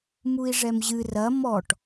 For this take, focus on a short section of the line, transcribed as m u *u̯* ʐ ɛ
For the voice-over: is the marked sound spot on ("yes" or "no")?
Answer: no